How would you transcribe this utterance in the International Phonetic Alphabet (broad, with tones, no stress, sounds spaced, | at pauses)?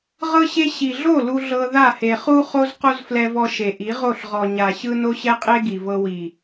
ʁ ɤ˦ ɕ e˦ ɕ i˨ ɮ o˦˨ l u˦ ɮ ɤ˧ ð a˦˨ h e˨ χ u˦ χ o˦ z q o˦ z f l ɛ˧ v ɔ˧ ʃ e˨ ʔ i˨˦ ʁ o˦˨ ɬ ʁ ɔ˨ ɲ a˨ ɕ ɯ˧ n o˦ ɕ ɛ˦ qʼ e˦ ɡ i˨ v ɤ˧ w i˨